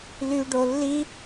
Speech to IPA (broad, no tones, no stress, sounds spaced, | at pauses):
l y ɖ o lː i